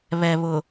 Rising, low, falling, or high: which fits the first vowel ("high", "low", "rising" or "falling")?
low